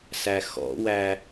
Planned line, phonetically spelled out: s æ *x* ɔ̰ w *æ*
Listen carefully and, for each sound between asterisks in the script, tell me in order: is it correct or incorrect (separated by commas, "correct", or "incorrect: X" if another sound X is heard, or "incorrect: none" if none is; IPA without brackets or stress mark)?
correct, correct